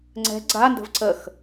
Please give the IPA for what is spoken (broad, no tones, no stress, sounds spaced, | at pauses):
ŋ͡ǀ ɛ̤ ɡ͡ǀ a n d ə̤ v ǀ ə x